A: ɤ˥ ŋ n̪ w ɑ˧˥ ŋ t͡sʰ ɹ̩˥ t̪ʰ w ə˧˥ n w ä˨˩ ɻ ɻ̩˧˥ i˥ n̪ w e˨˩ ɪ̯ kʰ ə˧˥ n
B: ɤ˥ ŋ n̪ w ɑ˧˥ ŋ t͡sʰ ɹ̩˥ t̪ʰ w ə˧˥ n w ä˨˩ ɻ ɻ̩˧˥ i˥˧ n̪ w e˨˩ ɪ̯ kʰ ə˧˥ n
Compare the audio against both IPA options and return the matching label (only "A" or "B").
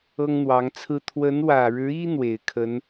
A